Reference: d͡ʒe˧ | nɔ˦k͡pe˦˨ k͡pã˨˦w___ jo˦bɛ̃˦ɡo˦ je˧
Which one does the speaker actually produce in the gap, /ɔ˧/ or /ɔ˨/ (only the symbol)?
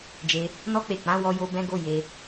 ɔ˧